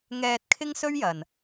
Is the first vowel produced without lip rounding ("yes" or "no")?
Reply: yes